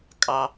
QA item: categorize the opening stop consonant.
ejective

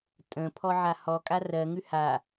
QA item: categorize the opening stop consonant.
ejective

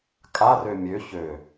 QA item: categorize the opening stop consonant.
ejective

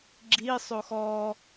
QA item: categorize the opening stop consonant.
click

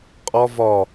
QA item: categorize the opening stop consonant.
ejective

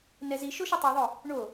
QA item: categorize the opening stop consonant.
plain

